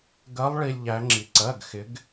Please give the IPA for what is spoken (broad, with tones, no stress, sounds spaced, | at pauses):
ɡ ɜ˧˥ lˠ ɭ i˧ lʲ ʎ æ˧˥ ŋ͡ǁ i˧ ǀ ɜ˧˥˧ ɡ x ɪ˧˥ ɡ